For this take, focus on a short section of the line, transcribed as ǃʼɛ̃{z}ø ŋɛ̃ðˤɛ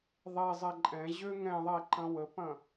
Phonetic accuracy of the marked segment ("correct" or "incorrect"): incorrect